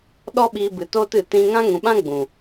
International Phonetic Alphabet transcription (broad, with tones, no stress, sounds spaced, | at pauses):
ɗ ɔ˦ ɓ iː˧ b ɨ˨ t oː˦ t ɨ˨ t ĩ˧ ŋ ã˦ ŋ ũ˨ ɓ ã˦ ɡ͡b ũ˨